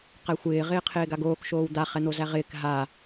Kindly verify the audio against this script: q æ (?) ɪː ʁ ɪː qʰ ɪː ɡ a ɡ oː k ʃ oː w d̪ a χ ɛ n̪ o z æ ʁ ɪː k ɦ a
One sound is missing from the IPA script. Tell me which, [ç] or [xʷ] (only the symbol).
xʷ